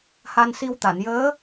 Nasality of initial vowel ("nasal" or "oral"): oral